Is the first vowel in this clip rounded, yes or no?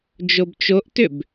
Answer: yes